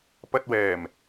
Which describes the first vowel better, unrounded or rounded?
unrounded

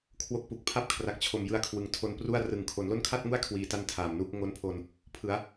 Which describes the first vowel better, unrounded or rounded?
rounded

